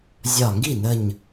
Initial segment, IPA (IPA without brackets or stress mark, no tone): zʲ